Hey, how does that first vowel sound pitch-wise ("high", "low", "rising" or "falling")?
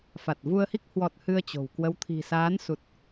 low